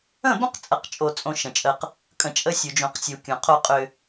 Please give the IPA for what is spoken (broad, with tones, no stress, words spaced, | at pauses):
ə̃˦˨bə̃˦qt͡sʼə˨qt͡ʃʼo˨ t͡sʼõ˦ʃə̃˨t͡ʃʼə˦q | kʼə̃˨t͡ʃʼə˦sʲu˨ d͡ʒõ˨qsʲu˨ kʲõ˨qʰo˦ qʼʏ˦